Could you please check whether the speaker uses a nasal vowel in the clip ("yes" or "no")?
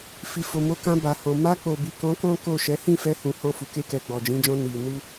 yes